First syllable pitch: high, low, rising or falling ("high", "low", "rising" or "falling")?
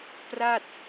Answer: falling